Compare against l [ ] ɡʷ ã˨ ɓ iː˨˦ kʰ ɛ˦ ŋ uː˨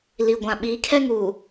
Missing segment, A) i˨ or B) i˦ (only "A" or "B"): A